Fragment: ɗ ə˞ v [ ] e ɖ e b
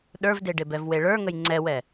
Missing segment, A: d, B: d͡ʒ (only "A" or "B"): A